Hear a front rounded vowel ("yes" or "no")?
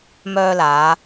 yes